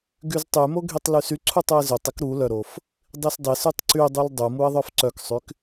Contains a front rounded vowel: yes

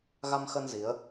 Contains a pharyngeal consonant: no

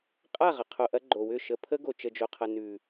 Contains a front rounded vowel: yes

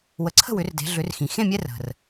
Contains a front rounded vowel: yes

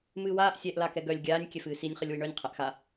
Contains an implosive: no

